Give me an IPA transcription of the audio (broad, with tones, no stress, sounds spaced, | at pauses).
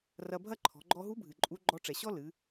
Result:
r ɐ˧ bʱ ɐ˥ ǃʰ ɔ̤˩˧ ɡ͡ǃ ɔ˧ ɦ u˧˥ bʱ ɨ˩ ǃʼ u˧˥ ɡ͡ǃ ɔ˧ ʈ͡ʂ ɛ˩ ɕ ɔ˥ l ɨ˩˧